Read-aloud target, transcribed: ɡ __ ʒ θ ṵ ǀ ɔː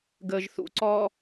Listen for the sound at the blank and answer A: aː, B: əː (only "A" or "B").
B